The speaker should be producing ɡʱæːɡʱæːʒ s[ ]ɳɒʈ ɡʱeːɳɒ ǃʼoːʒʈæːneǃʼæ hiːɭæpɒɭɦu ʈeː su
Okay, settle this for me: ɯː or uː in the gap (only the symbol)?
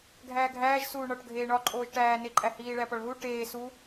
uː